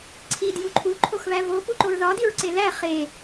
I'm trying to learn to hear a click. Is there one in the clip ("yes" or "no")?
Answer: yes